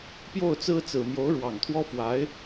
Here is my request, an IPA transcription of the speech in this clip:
pjo˥˩ʊ̯t͡sɹ̩˥t͡sɹ̩˨˩ mjo˧˥ʊ̯ɻwɑ˨˩ŋt̪ʰwɔ˥fwa˧˥ɪ̯

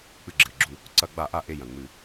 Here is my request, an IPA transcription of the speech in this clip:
k͡pɨ˧˩ɡ͡ǁɨ˩ɪ̯ɡ͡ǁu˧˩ | ǀɐ˧˩˧ɡ͡ba˧˩˧ʔa˧˩ʔe˧˩ jɐ̃˩ ŋ͡mɨ˧˩˧

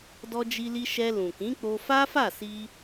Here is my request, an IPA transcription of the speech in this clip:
dɔ˧d͡ʒi˧li˧ ʃɛ˧lũ˨kĩ˨˦ k͡po˧fa˦fa˦˨si˧

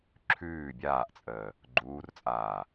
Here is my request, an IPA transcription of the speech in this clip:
ǁʰʉː bʲaːʔt͡sʼəː | ɡ͡ǃuːrt͡sʼaː

